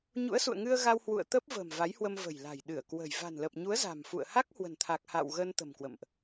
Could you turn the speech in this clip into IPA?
ɲṵ˧˥ə̯sṵ˧˨ə̯ŋɨ˧ə̯ ɣa˧whwṵ˧˨ə̯ t̪ə˦˥p̚və̤˨˩m va˨˦jhwə˧mvə̤˨˩jla̤˨˩j ɗɨ˧˩ə̯kwə̤˨˩j va̤˨˩nlə˨˩p̚ɲu˨˦ə̯ za̤˨˩mfṵ˧˨ə̯ ha˦˥k̚ hwə̤˨˩nt̪ʰa˨˩k̚ha̰˧˨w ɣə˧n t̪ə̤˨˩mkwə̰˧˨mʔ

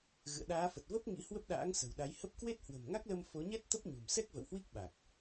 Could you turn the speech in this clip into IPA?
ɣɨ̰˧˨ə̯ɗaː˨˦fə˨˩t̚ və˦˥p̚ ŋḭ˧˥ hwə˦˥p̚ɗa̰ː˧˥ŋ sə̤˨˩wɗa˨˦jhə˦˥p̚ kwe˦˥t̚hwə̤˨˩mŋa˦˥k̚lə˧m fo˨˦ɲɛ˦˥t̚ t̪ə˦˥p̚ɲṳ˨˩m sɛ˦˥k̚və̰˧˨whwi˦˥k̚ ɓa˨˩k̚

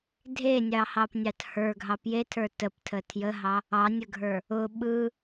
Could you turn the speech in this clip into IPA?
dʱenʲɑhɑpnʲɑt hə˞ɡʱɑ pjetʰə˞ təptʰə tʰjəɦɑ | ɑnʲəɡʱə˞ | ʊ ɓɯ

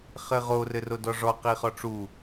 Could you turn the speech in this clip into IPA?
χɘʁo rɘrodɔʐɔ qiχɔʈ͡ʂu

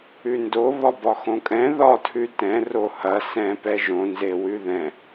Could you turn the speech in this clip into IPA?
ʉndo βɒbɒxõkʼɛ̃ ðɒ tʰʉtɛ̃ rohɐ sɛ̃ pɛʒõ nzewʉðɛ̃

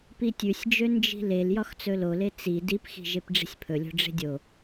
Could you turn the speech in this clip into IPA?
pitʲʉsʲd͡ʒø nd͡ʒi̤lel jɒxt͡sɵlole t͡si dipxi̤ ʒepɖ͡ʐi̤sʲpʰɵlʲo̤ ɖ͡ʐe̤dʲo

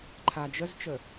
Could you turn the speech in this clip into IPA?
ǃʰad͡ʒəzt͡ʃə

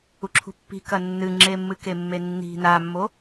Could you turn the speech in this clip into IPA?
uǁʰṳpːi̤kɐ nːɨŋ͡ǁemːɨke mːenːi̤ namːo

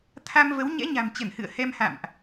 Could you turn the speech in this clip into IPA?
t̪ʰa˧mvə˨˦wɲɛ̰˧˥ ɲa̤˨˩mt͡ɕə˧˩nhɨ̰˧˨ə̯ hɛ˧mha̰˧˨mʔ

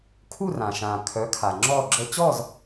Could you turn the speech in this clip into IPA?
kʰu˥˨rã˩ʃãː˩ kʰœ˩˥kʰa˩ ŋ͡ǁɔː˥˨ɡ͡ǁəː˦ t͡ɕɔ˥˨z

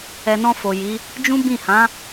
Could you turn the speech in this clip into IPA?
ɛ˨nɔ̃˧ fo˨ji˨˦ | d͡ʒũ˦bĩ˦˨ hã˨˦

